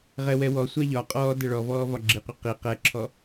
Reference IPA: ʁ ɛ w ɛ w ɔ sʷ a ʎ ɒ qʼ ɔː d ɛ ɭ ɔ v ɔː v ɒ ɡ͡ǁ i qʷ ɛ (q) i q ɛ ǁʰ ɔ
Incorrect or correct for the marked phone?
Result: correct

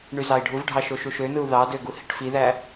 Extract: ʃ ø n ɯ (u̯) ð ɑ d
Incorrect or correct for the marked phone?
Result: correct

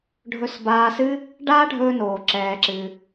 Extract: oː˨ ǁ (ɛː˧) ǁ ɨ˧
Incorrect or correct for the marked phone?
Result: correct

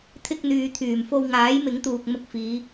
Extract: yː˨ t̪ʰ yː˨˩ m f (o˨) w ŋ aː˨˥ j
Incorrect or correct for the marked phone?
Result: incorrect: o˧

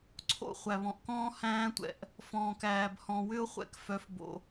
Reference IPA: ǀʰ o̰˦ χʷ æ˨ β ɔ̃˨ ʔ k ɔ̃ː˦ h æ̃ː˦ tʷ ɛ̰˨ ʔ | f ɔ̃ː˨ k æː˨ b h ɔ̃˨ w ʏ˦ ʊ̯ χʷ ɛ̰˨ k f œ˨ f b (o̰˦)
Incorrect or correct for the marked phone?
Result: incorrect: o̰˨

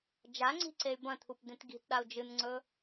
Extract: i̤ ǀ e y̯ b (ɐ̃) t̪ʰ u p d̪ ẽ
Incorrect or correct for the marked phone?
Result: correct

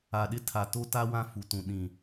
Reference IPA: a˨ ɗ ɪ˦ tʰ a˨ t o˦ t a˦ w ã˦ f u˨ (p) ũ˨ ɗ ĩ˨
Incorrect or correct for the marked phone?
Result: incorrect: t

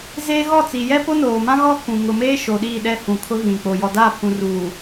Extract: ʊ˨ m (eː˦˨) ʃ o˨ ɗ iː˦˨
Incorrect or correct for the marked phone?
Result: incorrect: eː˦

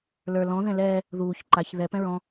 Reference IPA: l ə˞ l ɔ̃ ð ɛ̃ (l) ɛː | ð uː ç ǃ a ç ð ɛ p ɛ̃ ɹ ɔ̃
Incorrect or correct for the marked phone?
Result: correct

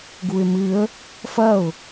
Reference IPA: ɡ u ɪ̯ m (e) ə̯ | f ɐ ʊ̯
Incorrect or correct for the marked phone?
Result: incorrect: ɨ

